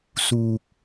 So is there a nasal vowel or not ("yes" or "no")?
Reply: no